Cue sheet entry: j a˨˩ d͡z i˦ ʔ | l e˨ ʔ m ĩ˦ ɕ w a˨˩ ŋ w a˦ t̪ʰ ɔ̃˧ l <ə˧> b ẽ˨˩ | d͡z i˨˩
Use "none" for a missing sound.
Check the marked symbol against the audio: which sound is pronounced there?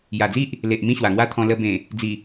ə˧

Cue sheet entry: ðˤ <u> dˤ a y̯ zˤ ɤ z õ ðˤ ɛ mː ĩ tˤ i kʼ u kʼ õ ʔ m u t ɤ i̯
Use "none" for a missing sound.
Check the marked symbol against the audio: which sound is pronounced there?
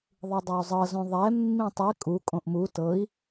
ɯ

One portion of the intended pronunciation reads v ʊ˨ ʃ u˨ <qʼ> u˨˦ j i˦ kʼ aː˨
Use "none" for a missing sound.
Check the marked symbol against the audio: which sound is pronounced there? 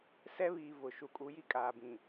kʼ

